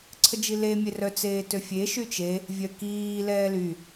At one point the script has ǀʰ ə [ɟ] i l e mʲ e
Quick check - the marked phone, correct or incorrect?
incorrect